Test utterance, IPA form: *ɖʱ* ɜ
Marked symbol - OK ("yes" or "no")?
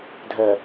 no